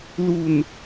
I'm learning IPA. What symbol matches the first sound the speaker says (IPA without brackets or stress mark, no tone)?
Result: l